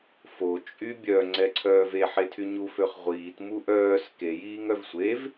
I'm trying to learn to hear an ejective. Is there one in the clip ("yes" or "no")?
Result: yes